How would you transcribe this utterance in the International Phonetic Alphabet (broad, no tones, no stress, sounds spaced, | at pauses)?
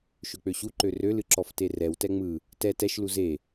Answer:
ʃ ø k͡p ø ɕ u ǃ ø r ø l ɨ ǁ ɔ f t e r ɛ w t ɛ ŋ͡m ɯ | t ɛ t ɛ ʃ l u z e